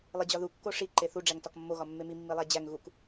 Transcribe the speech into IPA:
lˠ i d͡ʑ ɒ ð u kː o ʂ i ǃ e θ u ɖ͡ʐ æ ŋ t ɒ k mː o ɣ ɒ mː e m i mː i lˠ æ d͡ʑ æ ŋ ɣ u k

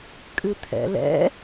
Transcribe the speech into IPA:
kʼ ɨ t̪ʰ ɛ̰ l ɛ̰

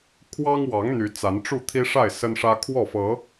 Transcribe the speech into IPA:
kʰ w ɑ˦ ŋ w ɑ˨˦ ŋ n̪ y˨˦ t͡s a˨˦ n ʈ͡ʂ u˥˨ t̪ʰ i˦ ʂ a˥˨ ɪ̯ s ə˦ n ʂ ä˦ kʰ w ɔ˥˨ f ɤ˨˦

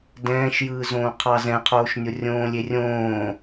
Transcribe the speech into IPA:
d ɛ̃ː ʃ j ɯː z õː qʰ ɑ z ɛ̃ qʰ oː ʃ nʲ o rʲ õː lʲ e rʲ õː

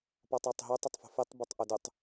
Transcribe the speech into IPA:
p ɔ tˤ œ tˤ ɦ ø tˤ ə tˤ f o̤ f e tˤ b œ tˤ ʔ ʊ d ʏ tˤ

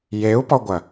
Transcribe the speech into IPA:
j e u̯ p ɔ ɡʷ ɐ

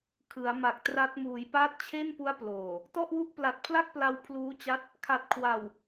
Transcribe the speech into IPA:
kʰ ɯ˩˦ a̯ m a˨˩ k̚ t r a˦˥ t̚ m uː˩˦ j p aː˦˥ t̚ t͡ɕʰ e˥˩ n p u˦˥ a̯ p l oː˨˩ | t ɔ˥˩ ʔ w u˥˩ ʔ p l a˨˩ t̚ pʰ l a˥˩ k̚ p l a˧ w pʰ l uː˦˥ t͡ɕ a˦˥ t̚ | kʰ a˨˩ t̚ kʰ w a˨˩ w

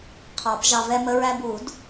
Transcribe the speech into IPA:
qʰ ɑ˨˩˦ p ʒ ɑ˧ v ɛ˧ m ə˧ ɹ æ˧ b u˨˩˦ d

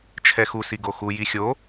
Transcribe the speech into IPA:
t͡ʃʰ ɛ x u s i ɡ o x u j i xʲ o

